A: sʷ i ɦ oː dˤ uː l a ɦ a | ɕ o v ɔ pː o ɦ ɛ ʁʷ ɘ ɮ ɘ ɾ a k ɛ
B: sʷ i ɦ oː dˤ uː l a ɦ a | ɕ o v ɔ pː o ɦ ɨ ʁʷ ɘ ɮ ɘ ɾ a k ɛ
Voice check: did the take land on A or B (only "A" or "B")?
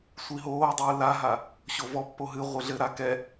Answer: B